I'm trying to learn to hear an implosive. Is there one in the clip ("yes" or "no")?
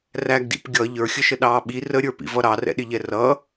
yes